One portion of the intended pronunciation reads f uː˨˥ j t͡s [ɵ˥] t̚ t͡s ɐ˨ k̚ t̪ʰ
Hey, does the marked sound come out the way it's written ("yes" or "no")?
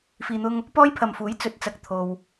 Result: no